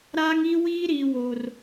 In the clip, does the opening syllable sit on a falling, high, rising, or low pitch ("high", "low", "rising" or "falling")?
high